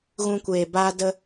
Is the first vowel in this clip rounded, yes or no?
yes